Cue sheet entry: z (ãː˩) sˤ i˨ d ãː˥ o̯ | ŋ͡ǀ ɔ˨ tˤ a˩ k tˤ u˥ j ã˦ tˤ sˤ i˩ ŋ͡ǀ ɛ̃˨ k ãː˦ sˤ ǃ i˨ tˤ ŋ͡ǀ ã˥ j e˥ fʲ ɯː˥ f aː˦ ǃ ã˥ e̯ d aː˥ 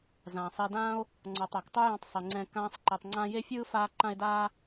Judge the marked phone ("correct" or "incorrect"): correct